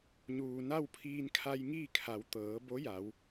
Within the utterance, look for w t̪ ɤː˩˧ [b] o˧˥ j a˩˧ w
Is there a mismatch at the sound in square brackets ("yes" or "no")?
no